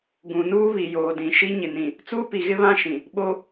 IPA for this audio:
ɡ ũ˨ n uː˦ β i˨ j oː˨ d ĩ˨ ʃ i˦ ɲ ɪ˨ n ĩ˨ | t͡s uː˦ p i˨ ɣ ɪ˦ β ã˦ ʃ ĩ˨ | ɓ o˦

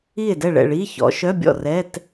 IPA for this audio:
i˥˩ e̯ d ɛ˥˩ ɭ ɛ̰˥˩ ɭ iː˧˥˧ ç ɔ̰˨˦ ʃ œ˧˥˧ bʲ ɔ̰˥˩ r ɛ˧˥˧ t

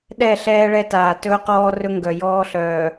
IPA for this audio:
ɗ ɛ˦˨ ɬ ɛː˦ ɭ ɛ˦ t aː˨ t ɵː˦ q ɔː˦ r ɵ˦ ŋ ɡ œ˨ j ɔː˦ ɬ œː˨

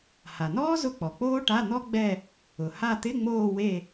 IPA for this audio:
h a˩ n ɔː˥ z ʊ˦˨ k͡p ɔ˩ k͡p oː˥ ʈ a˧˥˧ n̪ ɔ˥ ɡ͡b ɛ˦˨ | ʊ˩ h a˦˨ t̪ ɪ˧˥˧ ŋ͡m oː˦˨ w e˦˨

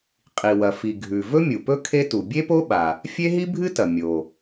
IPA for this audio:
qʼ i˩ w ɐ˩ f i˩ ɡʱ ʉ˩ v ɵ˥ mʲ u˩ p ɵ˥ kʰ e˥ t u˩ bʲ e˥ p o˥ ɓ a˩ | fʲ e˥ ɦ i˥ bʱ ɨ˥ t ɐ˩ mʲ o˩

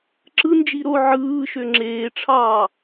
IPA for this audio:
ǁ ɯ n d͡ʒ i ɾ o ʕ ɯː ʃ ø ŋ͡ǁ eː ʈ͡ʂʰ ɑː

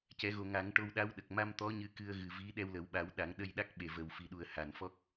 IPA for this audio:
c ɛ˨˩˦ ɣ o˨˩ ŋ a˨˩˦ ŋ ʈ o˧ w ɗ a˧˥ w ɗ ə˨˩ k̚ m a˧ m t̪ ɔ˧˥ ɲ ɨ˧˥ k ɨ˧ ə̯ ɣ ɨ˨˩ v i˧˥ ɗ ɛ˧ w l ə˨˩˦ w ɓ a˨˩˦ w ɗ a˨˩˦ ŋ ɗ ə˧ j ɗ a˦˥ k̚ ɓ e˨˩ v ə˨˩ w f i˨˩ ɗ u˨˩ ə̯ h a˨˩ n f ɔ˦˥ k̚

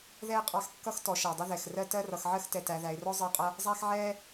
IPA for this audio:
ð ɛ˥ ɪ̯ qʼ ɑ˦ x kː ʌ˥ x t ɔ˨ ʃ ɜ˩ dˤ ə˦ ð ɛ˩ x r ɜ˦ t ɜ˦ r ʌ˨ x ʕ ɜ˥ x t ɛ˨ t æ˨ ð æ˨ ɪ̯ r ɔ˥ zˤ ə˦ ɪ̯ qʼ ʌ˦ | zˤ æ˥ x ʕ ɛ˥

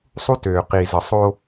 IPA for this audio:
sˤ u˦ t øː˨ q i˨ z ə˨ sˤ o˦

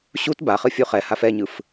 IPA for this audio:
ɕ u t b a χ ɯ fʲ u χ ɛ h a f ɛ ɲ ɯ f

